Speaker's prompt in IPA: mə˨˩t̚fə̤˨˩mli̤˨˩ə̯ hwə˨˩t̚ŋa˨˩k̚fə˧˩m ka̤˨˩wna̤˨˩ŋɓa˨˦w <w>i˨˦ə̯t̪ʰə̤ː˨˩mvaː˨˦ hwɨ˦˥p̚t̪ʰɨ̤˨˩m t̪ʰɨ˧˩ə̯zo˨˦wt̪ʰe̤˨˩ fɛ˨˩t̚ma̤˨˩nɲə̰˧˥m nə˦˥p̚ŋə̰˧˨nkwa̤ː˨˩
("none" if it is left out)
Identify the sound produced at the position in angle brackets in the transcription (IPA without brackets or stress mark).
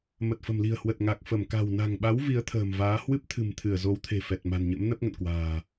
v